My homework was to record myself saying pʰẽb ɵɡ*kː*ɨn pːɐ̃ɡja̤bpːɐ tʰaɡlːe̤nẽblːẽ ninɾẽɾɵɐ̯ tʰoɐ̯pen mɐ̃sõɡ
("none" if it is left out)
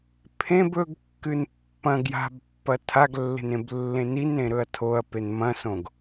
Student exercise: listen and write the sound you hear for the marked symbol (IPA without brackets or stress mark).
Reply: kː